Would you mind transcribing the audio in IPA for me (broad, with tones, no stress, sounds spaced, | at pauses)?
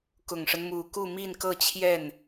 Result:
k ʊ˨˩ ŋ ʂ ə˦ n m u˨˩ k u˥˧ m i˥˧ n k ɤ˥˧ t͡ɕʰ j ɛ˥˩ n